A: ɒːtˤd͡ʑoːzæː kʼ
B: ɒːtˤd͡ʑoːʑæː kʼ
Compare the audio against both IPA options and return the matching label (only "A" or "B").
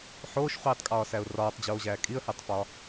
B